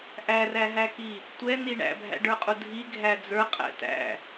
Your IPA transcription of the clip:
ʔ æ r æ ɦ æ k i | tʷ ɛ n̪ i ɳ æ̰ bʱ æ̰ ɖ ə˞ qʼ u dʱ i ɡʱ æ d͡z ə˞ qʼ æ̰ t æ̰

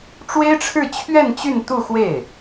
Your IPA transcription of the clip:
ʈ͡ʂ w e˥ ɪ̯ ʈ͡ʂʰ ɻ̩˥˧ t͡ɕʰ ɥ ɛ˥˧ n t͡ɕ y˥˧ n t̪ u˥˧ x w e˥˩ ɪ̯

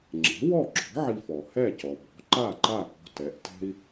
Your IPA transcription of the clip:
ŋ͡ǁ ɛ̤˩˥ w ɔ˥˩ ɡ͡ǁ ɔ̤˩˥ ʕ i˧ f ɔ˩ h ɛ˥˩ c ɔ˩ b ɔ̤˩˥ ǃ a˥˩ ǃ a˥˩ p ɔ̤˧ t ɛ˩˥ ʔ t ɛ̤˥ i̯

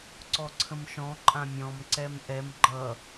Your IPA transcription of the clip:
ǀ ɔ ǀʰ ə̃ m ʃ ɔ̃ ǃʼ ã mʲ ɔ̃ m ǀ ɛ m ʔ ɛ m ɡ͡ǃ ʌ

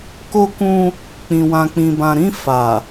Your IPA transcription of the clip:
k o˧ k ũ˧ | k͡p ĩ˨ w ã˨ k͡p ĩ˨ b ã˨ ɾ ĩ˧ f a˨

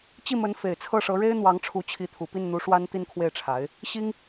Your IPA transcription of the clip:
t͡ɕ i˥˩ m ə˧˥ n f e˨˩ ɪ̯ t͡sʰ ɤ˥˩ ʂ ɤ˧˥ ɻ e˥ ɪ̯ n̪ w ɑ˧˥ ŋ ʈ͡ʂʰ u˧˥ t͡ɕʰ i˧˥ t̪ʰ u˨˩ p i˥˩ n n̪ u˧˥ ʂ w a˥ n t̪ i˥˧ n kʰ w e˥˩ ɪ̯ ʈ͡ʂʰ a˧˥ ɪ̯ | ɕ i˥ ŋ

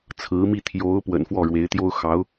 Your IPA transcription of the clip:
t͡sʰ ɹ̩˧˥ m i˥˩ t̪ʰ j o˧˥ ʊ̯ p w ə̰˨˩ n f w ɔ˥˩ ɻ w e˧˥ ɪ̯ t̪ j o˥ ʊ̯ x ɑ˧˥ ʊ̯

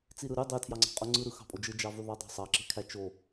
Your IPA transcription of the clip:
t͡s i ɾ ɯ ɾ y dˤ e tʰ j ɑ ŋ͡ǀ ɑ̤ qʼ o ŋ͡ǀ ɯ ɾ ɯ x ɑ̤ pʼ o d͡ʒ ɯ d͡ʒ ɑ v y ðˤ ɑ dˤ ɑ̤ sˤ ɑ ǁ e̤ kʰ æ t͡ʃ o

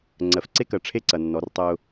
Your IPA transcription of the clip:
ŋ͡ǀ ɜ˨ f ǀ e˦ k ɜ˨ ʈ͡ʂʰ e˦ ǀ ɐ˨ nː ɔ˨˦ r tˤ ɜ˦ ʊ̯

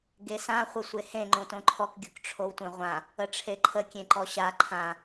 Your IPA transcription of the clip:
ɡ e s ã χʷ ə sʷ e h ẽ ŋ͡ǃ õ t õ ǃʰ ɔ k ɡʲ o k ʈ͡ʂʰ o w tʷ œ̃ ʁʷ ã | ə ʈ͡ʂʰ e ǃʰ ə kʲ ẽ ǃ ɔ ɕ a ǃʰ ã

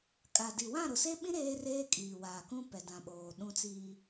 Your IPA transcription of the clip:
kʼ a˨ d i˨ w ã˦˨ ɾ ʊ˨ s e˦ ɓ ĩ˦ ɾ eː˦ r eː˦ kʼ iː˨ w aː˨ k ũ˦ p ɛ˨ d ã˨ ɓ oː˨ ɗ ũ˦ t͡s iː˦

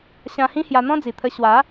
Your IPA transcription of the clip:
ɕ ã˧ h ĩ˦ h j a˧ n̪ ɔ̃˦ d͡z i˨˩ t̪ʰ ə˧ ɕ w a˨˦

